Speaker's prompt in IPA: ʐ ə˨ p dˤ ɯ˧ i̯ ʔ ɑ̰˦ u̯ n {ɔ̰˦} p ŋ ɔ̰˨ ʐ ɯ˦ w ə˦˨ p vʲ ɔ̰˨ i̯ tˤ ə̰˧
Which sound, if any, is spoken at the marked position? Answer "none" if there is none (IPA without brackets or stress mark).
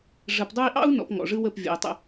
ɔ̰˧